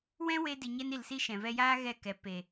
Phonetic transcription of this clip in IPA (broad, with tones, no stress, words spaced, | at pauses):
wɛ̃˦we˧ di˨ɲɛ˧ni˨lsi˧ ʃɛ̃˨ vɛ˧jaː˦ ɣɛ˦˨kɛ˨ pe˨